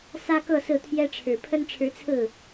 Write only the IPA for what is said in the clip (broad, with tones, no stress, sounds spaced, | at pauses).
s ä˥ k ɤ˥˧ s ɹ̩˥˩ t̪ʰ j ɛ˥ ʈ͡ʂʰ ɻ̩˨˩ pʰ ə˥ n ʈ͡ʂʰ ɻ̩˧˥ t͡sʰ ɹ̩˥˩